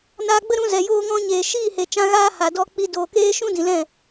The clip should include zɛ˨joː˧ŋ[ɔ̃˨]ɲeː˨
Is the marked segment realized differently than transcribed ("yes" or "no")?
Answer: yes